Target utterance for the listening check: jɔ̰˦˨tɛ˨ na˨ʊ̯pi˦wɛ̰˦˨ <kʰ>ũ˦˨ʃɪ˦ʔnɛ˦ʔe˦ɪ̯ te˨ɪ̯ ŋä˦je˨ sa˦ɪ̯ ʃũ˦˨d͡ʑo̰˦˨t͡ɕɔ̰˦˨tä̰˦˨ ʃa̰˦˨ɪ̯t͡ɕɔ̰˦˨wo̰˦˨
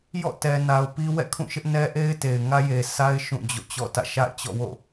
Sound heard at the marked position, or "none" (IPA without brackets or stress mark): kʰ